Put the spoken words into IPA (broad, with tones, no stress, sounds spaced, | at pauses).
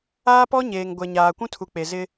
aː˦ p ɔ˦ ɲ eː˨ ŋ ɡʷ ɛ˨ ɲ aː˨ kʷ ũ˦ tʰ u˨ k͡p e˨ z ɪ˦